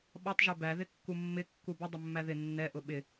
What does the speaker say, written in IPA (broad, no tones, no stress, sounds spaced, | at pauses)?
ɓ ɒ tˤ ʒ ɛ b æ ð ɪ kː u mː ɪ kː u b ɪ dˤ ʊ mː æ ð ɪ nː ɛ ʔ ʊ ɓ ɪ